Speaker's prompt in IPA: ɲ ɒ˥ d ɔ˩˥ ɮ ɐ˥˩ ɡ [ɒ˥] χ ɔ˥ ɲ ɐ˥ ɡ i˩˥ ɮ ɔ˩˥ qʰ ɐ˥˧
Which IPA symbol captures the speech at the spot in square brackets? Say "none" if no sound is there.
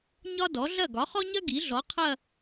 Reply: ɒ˩˥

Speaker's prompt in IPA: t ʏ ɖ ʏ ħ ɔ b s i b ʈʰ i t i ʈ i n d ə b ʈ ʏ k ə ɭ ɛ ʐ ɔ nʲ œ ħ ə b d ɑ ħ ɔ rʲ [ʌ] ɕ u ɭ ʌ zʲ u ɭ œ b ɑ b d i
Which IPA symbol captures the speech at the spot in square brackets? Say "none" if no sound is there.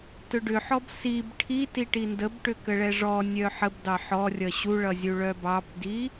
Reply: ʌ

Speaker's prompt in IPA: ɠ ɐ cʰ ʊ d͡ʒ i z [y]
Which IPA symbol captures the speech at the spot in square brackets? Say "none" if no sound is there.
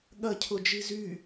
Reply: y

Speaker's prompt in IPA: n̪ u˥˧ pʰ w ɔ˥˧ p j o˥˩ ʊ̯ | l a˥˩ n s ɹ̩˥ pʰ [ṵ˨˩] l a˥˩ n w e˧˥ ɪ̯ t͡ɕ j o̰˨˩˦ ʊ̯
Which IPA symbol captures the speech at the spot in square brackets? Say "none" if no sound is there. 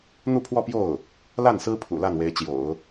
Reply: ṵ˨˩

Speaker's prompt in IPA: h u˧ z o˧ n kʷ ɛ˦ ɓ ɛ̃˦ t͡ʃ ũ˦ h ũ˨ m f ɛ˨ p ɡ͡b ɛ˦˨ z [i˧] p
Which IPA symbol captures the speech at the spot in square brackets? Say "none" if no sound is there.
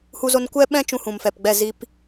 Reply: i˦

